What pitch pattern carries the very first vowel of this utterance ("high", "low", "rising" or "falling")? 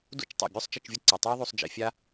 falling